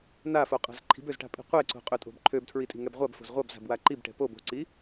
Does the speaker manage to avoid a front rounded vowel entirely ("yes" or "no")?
no